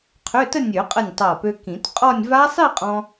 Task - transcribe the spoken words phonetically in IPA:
qʰø˧˥˧tə˥˧ nʲø˨˩˦qʼə˧˩nʲ tˤa˧˩pø˧kĩ˨˩˦t qʼɔ˥˧nʲ va˦˥sˤi˥˧qʼɔ̃˧

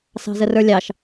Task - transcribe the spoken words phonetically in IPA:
sɑ̤zərə˞lʲɑʃ

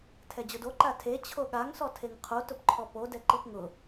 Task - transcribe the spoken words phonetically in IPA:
tʰɛd͡ʑʊdo ǃatʰe t͡ɕʰoɠaŋ sɔtʰeŋqʰo tʊpǃʰɔpo dɛǃipŋʊ

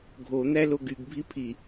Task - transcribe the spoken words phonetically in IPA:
ɡʱo n̪æloɡyɡ bʱipʰi

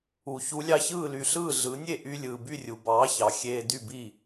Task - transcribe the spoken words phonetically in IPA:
u˩ çu˩˥lʲɑ˧çɯː˥˩ly˩ ɬɯː˥˩ ɮɯ˩˥nʲe˥˩ ʔy˧ lʲɯː˩by˥˩rʲu˩ bɑː˩˥çɑ˩ xʲeː˧dy˥˩ bi˥˩

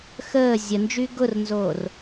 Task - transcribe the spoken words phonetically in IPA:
xəː zʲənd͡ʒy ɡʊrnzoːr

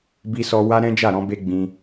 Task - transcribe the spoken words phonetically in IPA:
bi˧sɔ˧ wa˦ɾɛ̃˦d͡ʒa˦˨ɾɔ̃˨˦ be˧ ɡ͡bĩ˧

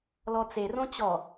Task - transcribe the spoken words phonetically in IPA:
lɔt͡serõ t͡ɕɔ

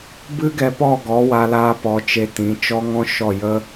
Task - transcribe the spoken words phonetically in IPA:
bɨ˦ɡɛ˧ pɔ˦˨ɡɔ˨˦wa˧laː˧ pɔ˧t͡ʃe˧ tĩ˨˦ t͡ʃɔ˦ŋɔ̃˦ʃɔ˦˨ jə˦

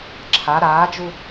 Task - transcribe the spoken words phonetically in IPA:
ǁʰa ɾaːd͡ʒu

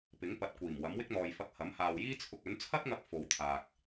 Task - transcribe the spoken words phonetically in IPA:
pɪ˨˥ŋpɐ˨t̚kʷiː˨˩m wɐ˨˥mwɪ˥k̚n̪ɔː˨jfɐ˧k̚ hɐ˨˥mhaː˨wjiː˥ t͡sʰʊ˧k̚ɵ˨˥n t͡sʰɐ˥t̚ŋɐ˧k̚ fo˨˧wt̪ʰaː˨k̚

